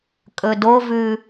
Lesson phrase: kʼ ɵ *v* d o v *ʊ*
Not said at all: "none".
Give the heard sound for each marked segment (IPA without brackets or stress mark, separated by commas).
none, ʉ